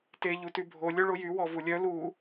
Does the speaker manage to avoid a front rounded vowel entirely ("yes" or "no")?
no